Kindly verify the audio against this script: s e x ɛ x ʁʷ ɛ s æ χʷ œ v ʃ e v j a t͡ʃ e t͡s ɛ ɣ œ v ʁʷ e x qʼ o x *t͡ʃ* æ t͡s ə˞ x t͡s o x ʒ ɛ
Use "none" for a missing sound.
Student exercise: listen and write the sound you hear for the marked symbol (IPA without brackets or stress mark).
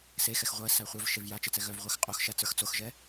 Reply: ʃ